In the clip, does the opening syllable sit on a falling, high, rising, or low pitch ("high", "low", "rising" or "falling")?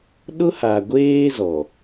high